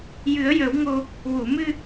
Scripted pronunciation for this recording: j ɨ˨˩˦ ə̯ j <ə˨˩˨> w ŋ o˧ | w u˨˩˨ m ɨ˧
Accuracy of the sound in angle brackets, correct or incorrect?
incorrect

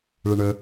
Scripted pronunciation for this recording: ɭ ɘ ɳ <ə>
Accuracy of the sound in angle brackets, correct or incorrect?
correct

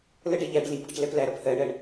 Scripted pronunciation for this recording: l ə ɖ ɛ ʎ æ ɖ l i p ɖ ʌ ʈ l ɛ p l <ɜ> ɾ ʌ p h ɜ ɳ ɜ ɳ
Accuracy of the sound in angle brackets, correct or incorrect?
incorrect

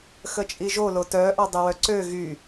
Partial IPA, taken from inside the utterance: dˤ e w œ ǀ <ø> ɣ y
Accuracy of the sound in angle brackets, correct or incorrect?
correct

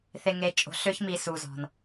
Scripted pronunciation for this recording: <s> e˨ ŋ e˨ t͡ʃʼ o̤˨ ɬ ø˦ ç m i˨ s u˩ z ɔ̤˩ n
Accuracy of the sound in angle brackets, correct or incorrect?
incorrect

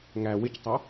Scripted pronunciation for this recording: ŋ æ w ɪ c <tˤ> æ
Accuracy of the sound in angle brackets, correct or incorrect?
correct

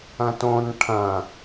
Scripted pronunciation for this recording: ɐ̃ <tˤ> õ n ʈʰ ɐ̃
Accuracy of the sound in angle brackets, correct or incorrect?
incorrect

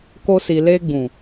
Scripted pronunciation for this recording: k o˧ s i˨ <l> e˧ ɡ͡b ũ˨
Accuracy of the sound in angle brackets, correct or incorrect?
correct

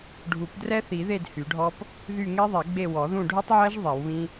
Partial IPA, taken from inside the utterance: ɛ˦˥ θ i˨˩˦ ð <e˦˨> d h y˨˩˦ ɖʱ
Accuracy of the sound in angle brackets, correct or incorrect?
correct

